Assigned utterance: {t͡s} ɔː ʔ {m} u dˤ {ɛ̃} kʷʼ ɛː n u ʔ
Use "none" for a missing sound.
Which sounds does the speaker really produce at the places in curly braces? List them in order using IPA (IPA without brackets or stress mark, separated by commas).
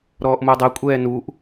ɾ, m, ɛ